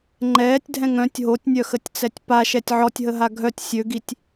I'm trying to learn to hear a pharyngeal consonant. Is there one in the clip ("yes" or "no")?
yes